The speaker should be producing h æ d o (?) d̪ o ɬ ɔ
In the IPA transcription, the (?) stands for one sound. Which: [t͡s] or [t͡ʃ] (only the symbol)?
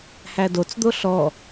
t͡s